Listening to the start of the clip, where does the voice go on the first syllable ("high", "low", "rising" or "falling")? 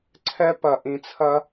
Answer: high